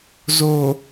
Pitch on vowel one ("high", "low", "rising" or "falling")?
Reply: low